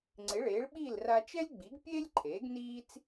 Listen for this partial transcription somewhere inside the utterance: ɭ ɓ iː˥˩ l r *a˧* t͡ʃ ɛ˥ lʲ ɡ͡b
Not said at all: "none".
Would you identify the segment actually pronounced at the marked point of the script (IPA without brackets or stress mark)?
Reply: a˧